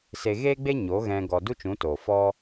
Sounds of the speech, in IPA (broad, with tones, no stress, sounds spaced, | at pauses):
s e˧ ɣ eː˦ ɡ͡b e˦ ɲ o˨˦ ɣ ɛ̃˧ ɡ ɔ˧ d u˦ t͡ʃ ũ˨˦ t oː˨ f ɔ˦